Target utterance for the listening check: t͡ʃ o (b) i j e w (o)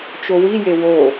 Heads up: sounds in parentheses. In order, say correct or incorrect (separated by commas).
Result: incorrect, correct